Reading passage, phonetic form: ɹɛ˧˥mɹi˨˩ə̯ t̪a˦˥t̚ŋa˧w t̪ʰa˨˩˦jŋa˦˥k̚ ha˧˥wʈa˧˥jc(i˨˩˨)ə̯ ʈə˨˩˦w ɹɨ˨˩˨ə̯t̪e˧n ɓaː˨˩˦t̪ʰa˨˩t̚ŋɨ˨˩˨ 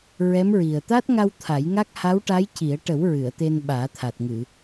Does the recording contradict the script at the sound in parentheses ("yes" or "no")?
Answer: yes